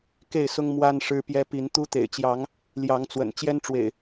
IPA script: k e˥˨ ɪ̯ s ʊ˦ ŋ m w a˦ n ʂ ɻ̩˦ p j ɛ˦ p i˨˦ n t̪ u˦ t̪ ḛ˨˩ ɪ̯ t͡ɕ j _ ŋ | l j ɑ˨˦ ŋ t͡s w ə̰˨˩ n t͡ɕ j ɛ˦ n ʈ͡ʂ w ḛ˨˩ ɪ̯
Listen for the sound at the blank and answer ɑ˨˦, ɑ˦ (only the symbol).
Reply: ɑ˨˦